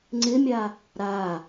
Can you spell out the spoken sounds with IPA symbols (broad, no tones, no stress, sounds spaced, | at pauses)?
ŋ͡ǀ ɪ mʲ a | ɾ a